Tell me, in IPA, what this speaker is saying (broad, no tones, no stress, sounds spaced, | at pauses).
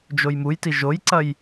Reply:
d͡ʒ o j m u j t i ʒ o j ǀ ɐ j